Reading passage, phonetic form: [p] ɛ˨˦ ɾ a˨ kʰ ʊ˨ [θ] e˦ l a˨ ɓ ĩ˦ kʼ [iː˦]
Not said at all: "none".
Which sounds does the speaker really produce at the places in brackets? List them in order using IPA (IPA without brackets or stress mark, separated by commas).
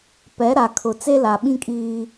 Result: p, t͡s, iː˦